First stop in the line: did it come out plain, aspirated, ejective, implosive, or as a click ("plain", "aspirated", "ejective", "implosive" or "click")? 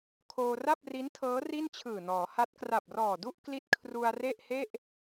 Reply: aspirated